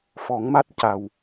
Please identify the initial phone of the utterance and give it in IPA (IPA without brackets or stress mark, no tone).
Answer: f